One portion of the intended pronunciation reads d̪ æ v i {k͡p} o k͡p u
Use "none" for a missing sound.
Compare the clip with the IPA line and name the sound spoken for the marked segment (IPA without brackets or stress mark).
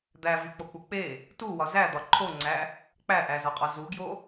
k͡p